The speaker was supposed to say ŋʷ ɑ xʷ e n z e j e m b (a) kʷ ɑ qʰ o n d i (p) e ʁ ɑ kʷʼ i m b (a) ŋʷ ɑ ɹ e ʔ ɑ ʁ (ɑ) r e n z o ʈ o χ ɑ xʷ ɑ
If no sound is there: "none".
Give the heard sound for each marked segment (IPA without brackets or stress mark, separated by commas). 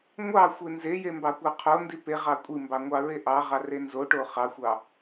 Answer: ɑ, p, ɑ, ɑ